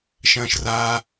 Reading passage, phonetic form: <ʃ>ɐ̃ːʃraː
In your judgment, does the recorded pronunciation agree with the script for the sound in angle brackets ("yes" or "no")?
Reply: yes